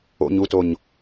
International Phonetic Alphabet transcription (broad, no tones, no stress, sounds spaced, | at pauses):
o̰ ɲ u t o ɲ